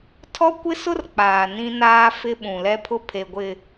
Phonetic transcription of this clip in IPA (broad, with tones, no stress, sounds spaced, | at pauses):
tʰ ɔ˦ kʷ ɪ˦ s ʊ˦ r k͡p aː˨ n ĩ˦ n aː˦ f ɪ˦ ɓ ũ˨ l ɛ˦ pʰ ʊ˦ pʰ e˨ ɡʷ ɪ˨